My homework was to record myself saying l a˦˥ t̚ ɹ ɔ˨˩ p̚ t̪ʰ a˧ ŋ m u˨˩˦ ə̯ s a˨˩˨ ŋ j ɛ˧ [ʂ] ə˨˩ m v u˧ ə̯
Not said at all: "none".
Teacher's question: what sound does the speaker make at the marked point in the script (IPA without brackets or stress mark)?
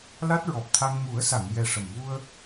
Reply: ʂ